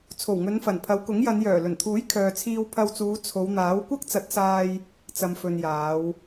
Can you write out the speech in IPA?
t͡sʰ o˨˩ w ŋ ɵ˨˧ n f ɐ˨˩ n pʰ ɐ˨˧ w k ʊ˨˥ ŋ j ɐ˨˧ n j œː˨˩ l ɵ˨˩ n t̪ʰ uː˨˥ j kʰ œː˨ t͡sʰ iː˧ w pʰ ɐ˧ w t͡s uː˨˧ t͡sʰ o˨˧ w n̪ aː˨˥ w kʷ ɐ˥ k̚ t͡s ɐ˨˥ t̚ s aː˧ j | t͡s ɐ˨ m f ɵ˨ n j aː˨˧ w

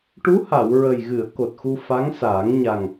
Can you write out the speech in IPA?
ʈ u˧˥ h a˨˩˨ w ɹ ə˨˩ j ɣ ɨ˨˩˨ ə̯ k o˨˩ t̚ x u˧ f a˧˥ ŋ s aː˨˩˦ ŋ ɲ a˨˩ ŋ

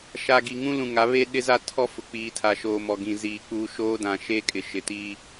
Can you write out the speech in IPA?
ʃ a˨ ɡ i˨ ŋ ũ˦ l ũ˨ ŋ a˨˦ β e˦ ɗ ɪ˦ z a˦ tʰ ɔ˦ f ʊ˨ k͡p iː˨ tʰ a˨ ʃ oː˨ m ɔ˨ ɡ ĩ˨ z iː˨ k͡p uː˦ ʃ oː˦ d ã˨ ʃ e˦ kʼ ɪ˨ ʃ ɪ˨ t iː˦

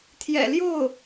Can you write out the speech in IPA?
t̪ʰ j ɛ̰˨˩ l j o˥˩ ʊ̯

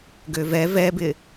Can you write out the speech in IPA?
ɡ ø v ɛ v ɛ b ɪ

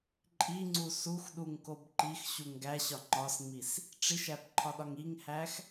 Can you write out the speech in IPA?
ǃʼ i ŋ͡ǀ u s u x ɗ u ŋ k o b ǃ i x ɕ u ŋ ɡ æ ɕ ɒ ŋ͡ǃ ɒ s ŋ͡m i s | ʈ͡ʂ i ʃ æ b ǃʰ ɒ ɗ ɒ ŋ i ŋ h æ x

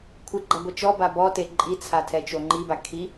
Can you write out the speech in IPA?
kʷʰ ɨ ɡ͡ǃ a ɡʷ ɘ t͡ʃ ɔ b a b ɔ t e ǃʼ i t͡sʰ a tʰ ɛ t͡ʃ o ŋ͡ǃ i b a kʰ i

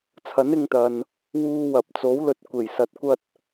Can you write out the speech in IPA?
t͡sʰ ɐ˨˥ n ɪ˧ ŋ t̪ ɐ˨ n | w uː˧ w ɐ˨ p̚ t͡s o˨˥ w l ɵ˨˥ t̚ kʷ e˨˩ j s ɐ˨ t̚ kʷ ɐ˧ t̚

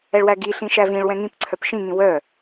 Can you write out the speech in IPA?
ɛ ɭ w æ ɡ i ɬ ĩ ʃ æ v ĩ ɭ w ɛ̃ ŋ ĩ p ǀʰ œ p ʃ ĩ ŋ ĩ w œ

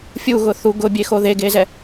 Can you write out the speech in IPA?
fʲ u ɣ ʊ θ u ɡ ʊ bʲ e x o ð e ɡ e z ɛ

